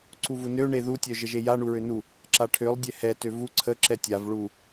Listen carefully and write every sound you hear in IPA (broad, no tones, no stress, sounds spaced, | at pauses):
ǀ u v u n ø ɳ e ð u tʲ œ ʒ ə ʒ e j a ɳ u ɹ ø n u | ǁ a ʈʰ ø lˠ dʲ ɛ h ɛ t ø v u ǀʰ ə ǁ ɛ tʲ a v ɭ u